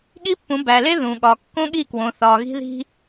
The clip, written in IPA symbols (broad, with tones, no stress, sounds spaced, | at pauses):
ɠ i˦ pː ũ˨˦ b æ˨ l e˦ ð ũ˨ ɠ ɒ˨ kː õ˦ ɠ i˦˨ k w õ˨ θ ɒ˨ ɣ i̤˦ ð i̤˦